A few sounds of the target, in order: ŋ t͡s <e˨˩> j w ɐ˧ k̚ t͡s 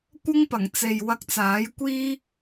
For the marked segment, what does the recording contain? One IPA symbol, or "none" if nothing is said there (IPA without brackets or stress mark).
e˨